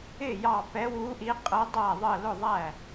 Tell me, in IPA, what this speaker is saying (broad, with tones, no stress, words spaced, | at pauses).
ɪ˧˩ jɑ˧˩pɛ˨˦wu˨˦ʔi˨˦ qʼə˨˦dˤæ˧˩ðˤə˧˩ lʊ˧˩ðˤæ˧˩